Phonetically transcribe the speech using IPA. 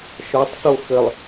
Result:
ʃ ɔ tˤ θ o x ɘ lˠ

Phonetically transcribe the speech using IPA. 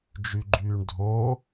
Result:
d͡ʒ y ɡ͡ǃ yː ɳ dʱ o

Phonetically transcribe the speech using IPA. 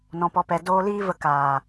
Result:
n ɔ̃˨ p ɔ˨ p ɛ˨ d oː˧ l iː˦ v ə˧ k aː˨

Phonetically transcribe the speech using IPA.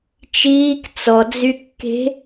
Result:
t͡ʃ iː k t͡s ɔ d͡z y kː e̤

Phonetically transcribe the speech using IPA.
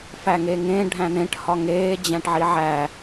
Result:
f æ ŋ eː ŋ ẽ ɖʱ æ̃ n̪ ẽ ʈ h ɒ ŋ eː d͡ʑ æ̃ ʈ ʕ i ʕ æ

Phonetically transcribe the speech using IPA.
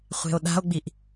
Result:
χʷ e̤ o̯ ɗ a̤ o̯ ɡ͡b i ʔ

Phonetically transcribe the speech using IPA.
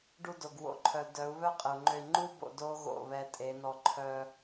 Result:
ɖ u˧ d o˨ ɡ w o̰˨ ǃʰ œ˨ d œ˨˦ u̯ β œ˦ qʼ ə˨ u̯ ŋ͡ǃ ø˧ i̯ ŋ͡ǃ u˦ b o̰˧ d o˦ ɣ o̰˦˨ β ɛ˧ tʼ e˨˦ n ɔ˧ ǃʰ œ˧

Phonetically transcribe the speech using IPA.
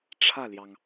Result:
ʈ͡ʂʰ ä˥˩ l j ɑ˩ ŋ

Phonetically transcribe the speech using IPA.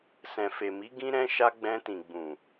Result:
s ɛ̃˨ f e˨ m i˨˦ ɡ ĩ˦ ɾ ɛ̃˦ ʃ a˦ ɡ͡b ɛ̃˧ t ĩ˨ ɡ͡b ũ˨

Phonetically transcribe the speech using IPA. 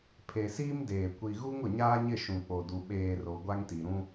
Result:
pʰ e˨ s iː˦ m d eː˨ kʷ i˨ ɣ u˦ ŋ ʊ˨ ɲ aː˦ ɲ ɪ˦˨ ʃ ũ˨ k͡p o˨ d u˨ ɓ eː˨ r o˨ ɡʷ a˦ ŋ t i˨ ɾ ũ˦

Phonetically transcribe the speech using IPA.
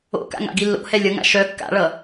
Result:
o̰ k a̰ ŋ a̰ ɡ i lː o̰ h ɛ lʲ ʌ ŋ a̰ ʃ œ kː a̰ ɭ ʌ

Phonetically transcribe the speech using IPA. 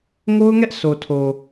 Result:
ŋ o˦ ʊ̯ ŋ ɛ˦ ʔ sʰ o˨ tʰ o˨

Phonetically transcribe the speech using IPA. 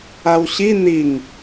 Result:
a w ɕ i n̪ i ŋ

